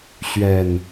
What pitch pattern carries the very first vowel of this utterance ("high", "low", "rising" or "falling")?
low